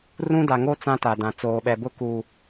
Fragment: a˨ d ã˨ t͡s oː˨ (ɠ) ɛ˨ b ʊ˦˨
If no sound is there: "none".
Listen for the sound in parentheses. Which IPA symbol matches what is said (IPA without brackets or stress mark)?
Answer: ɓ